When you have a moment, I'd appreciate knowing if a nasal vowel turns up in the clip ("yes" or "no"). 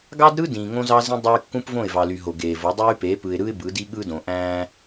yes